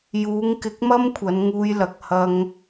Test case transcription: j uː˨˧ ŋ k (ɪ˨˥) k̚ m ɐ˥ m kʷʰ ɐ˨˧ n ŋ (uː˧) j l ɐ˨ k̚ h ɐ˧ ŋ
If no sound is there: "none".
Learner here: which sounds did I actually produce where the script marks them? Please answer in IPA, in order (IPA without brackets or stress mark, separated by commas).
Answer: ɪ˨˥, uː˧